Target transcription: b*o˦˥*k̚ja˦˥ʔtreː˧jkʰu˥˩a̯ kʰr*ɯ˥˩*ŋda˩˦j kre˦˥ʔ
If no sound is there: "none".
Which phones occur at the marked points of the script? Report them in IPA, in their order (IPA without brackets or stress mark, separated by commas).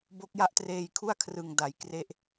o˦˥, ɯ˨˩